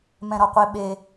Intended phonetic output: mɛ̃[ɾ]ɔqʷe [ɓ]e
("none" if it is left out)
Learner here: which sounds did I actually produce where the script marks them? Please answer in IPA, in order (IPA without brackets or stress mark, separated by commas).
ɾ, ɓ